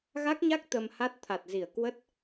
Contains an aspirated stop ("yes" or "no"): yes